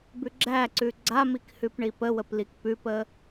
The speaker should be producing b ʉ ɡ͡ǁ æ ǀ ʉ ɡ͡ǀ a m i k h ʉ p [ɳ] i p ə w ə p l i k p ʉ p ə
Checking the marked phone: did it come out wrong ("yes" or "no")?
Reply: no